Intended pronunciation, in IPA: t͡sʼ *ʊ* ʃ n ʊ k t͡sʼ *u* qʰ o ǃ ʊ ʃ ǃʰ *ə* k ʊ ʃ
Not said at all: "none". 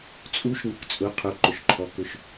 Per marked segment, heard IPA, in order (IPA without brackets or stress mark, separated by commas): u, ʊ, ɔ